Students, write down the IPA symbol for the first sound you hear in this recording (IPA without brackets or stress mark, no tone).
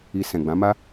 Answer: i